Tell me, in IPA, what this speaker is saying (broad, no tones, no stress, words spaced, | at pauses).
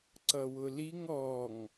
ǀʌwʊliŋ ɔŋ